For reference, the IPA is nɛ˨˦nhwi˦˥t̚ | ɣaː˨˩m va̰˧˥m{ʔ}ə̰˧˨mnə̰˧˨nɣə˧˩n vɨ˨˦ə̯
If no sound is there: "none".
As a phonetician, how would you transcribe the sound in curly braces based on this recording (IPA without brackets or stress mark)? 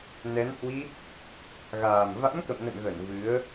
k